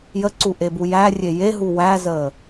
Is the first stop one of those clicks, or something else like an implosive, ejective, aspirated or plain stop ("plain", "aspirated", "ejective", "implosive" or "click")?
click